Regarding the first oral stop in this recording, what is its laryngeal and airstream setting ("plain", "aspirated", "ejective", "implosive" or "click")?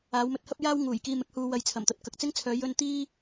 plain